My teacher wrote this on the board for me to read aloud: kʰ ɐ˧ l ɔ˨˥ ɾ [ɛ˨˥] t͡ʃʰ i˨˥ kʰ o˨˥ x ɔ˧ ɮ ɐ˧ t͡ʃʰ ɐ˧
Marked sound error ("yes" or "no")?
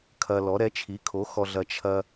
no